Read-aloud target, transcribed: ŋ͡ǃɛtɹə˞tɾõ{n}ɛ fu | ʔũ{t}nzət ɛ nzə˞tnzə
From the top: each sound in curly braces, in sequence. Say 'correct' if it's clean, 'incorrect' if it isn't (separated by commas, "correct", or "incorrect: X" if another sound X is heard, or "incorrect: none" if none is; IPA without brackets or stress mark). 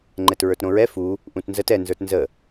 incorrect: ɹ, correct